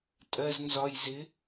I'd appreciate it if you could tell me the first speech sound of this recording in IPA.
tʼ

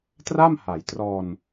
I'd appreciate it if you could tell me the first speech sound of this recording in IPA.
t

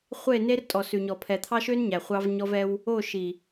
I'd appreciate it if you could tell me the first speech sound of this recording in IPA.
χʷ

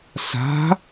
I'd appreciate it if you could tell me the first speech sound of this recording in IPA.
s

